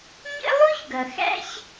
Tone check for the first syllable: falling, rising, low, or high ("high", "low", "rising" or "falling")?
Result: high